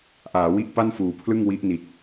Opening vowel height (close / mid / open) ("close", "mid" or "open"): open